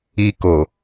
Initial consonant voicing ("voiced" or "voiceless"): voiceless